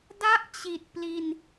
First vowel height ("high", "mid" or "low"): low